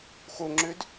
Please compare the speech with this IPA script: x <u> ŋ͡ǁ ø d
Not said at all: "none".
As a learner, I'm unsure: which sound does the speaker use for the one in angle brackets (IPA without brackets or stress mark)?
o